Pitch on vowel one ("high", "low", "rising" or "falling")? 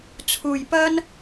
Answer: low